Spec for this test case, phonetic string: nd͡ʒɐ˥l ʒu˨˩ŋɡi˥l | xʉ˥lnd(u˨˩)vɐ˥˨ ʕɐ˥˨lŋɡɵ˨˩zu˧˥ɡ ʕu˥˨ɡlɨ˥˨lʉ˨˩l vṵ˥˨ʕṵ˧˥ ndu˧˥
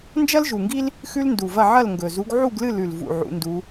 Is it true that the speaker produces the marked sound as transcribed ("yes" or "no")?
yes